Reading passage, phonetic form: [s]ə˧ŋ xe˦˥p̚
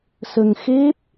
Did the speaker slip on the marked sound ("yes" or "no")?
no